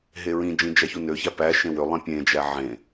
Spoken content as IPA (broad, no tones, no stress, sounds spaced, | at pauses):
ɦ e ɹ ĩ d͡ʒ ĩ d͡ʒ æ ç u n ø ç æ p æ ʃ ẽ w ø lˠ ĩ pʲ ẽ d͡ʒ æ ʕ ẽ